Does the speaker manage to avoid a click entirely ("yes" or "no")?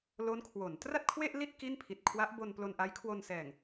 yes